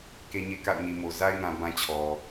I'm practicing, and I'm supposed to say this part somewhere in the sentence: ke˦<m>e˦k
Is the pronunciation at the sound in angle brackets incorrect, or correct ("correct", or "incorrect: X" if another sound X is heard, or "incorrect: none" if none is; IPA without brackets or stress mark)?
incorrect: ɲ